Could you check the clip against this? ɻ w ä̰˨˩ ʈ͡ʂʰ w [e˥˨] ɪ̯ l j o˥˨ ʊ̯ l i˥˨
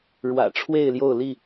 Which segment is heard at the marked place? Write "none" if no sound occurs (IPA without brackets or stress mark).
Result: e˥˨